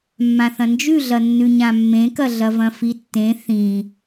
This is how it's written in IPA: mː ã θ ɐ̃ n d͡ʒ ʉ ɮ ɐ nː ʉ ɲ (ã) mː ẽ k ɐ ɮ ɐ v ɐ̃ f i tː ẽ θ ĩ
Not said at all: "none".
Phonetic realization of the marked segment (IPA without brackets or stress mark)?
ã